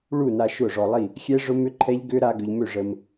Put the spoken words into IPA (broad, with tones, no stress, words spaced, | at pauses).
ɭu˥˨na˧ ʃʊ˥˨ʐɔ˧lˠi˥˨ | xʲɛ˦˥ʐʊ˦˥mʏ˦˥ǃʰɛ˦˥ʎ ɡʏ˦˥ ɾa˦˥ɡʏ˧ʎmø˥˨ ʐə˧m